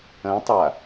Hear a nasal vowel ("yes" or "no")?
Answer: yes